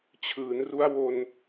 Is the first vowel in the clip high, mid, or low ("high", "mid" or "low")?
high